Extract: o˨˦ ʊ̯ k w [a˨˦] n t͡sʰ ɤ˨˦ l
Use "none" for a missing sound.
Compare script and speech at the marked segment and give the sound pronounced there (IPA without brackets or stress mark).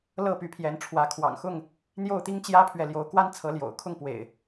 a˦